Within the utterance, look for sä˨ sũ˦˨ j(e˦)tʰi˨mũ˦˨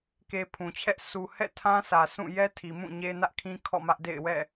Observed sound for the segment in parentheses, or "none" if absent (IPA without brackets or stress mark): ɛ˦